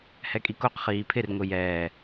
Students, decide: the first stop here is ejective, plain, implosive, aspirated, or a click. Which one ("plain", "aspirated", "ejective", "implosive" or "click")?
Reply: ejective